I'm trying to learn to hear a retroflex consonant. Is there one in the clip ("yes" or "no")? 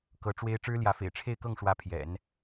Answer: yes